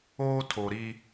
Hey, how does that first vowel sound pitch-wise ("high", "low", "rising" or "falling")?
high